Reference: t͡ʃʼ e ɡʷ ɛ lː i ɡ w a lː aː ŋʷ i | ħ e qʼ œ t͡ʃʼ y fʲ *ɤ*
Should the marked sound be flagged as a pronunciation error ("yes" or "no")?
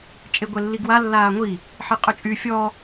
yes